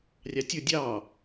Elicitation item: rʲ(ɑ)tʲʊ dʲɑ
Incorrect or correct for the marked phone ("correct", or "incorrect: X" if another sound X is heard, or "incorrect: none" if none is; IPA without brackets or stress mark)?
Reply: correct